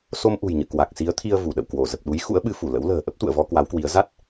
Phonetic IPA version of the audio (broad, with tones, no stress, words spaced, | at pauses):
so˧mʔṳ˨˩jɲɨ̰˧˨ kwa˨˩k̚si˨˦ə̯t̪ʰi˧ə̯ vu˧˩ɗə̰˧˨w kwo˧˩ zə˨˩p̚ɗu˨˦j xṵ˧˥ə̯ɓɨ˨˦fu˧˩ lə̰˧˥wlə̤ː˨˩ ʔə˦˥p̚t̪ṵ˧˨ə̯vɔ˧ kwa˨˦wkwi˨˦ə̯ za˦˥t̚